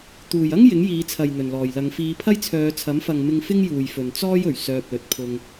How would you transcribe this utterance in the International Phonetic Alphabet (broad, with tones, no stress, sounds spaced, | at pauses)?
t̪ uː˨˩ j ɐ˥ ŋ j ɪ˨˥ ŋ j iː˨˧ t͡sʰ ɐ˨ j n̪ ɵ˨˩ n l ɔː˨˩ j l ɐ˨˧ ŋ f iː˨˧ pʰ ɐ˥ j t͡sʰ œː˨˧ t͡sʰ ɐ˨˥ m f ɐ˨ ŋ m ɪ˧ ŋ f ɪ˥ ŋ j uː˨ j f ɵ˨ n t͡s ɔː˥ j ɵ˨˩ ɥ s œː˧ p̚ l ɵ˨ t̚ pʰ ʊ˧ ŋ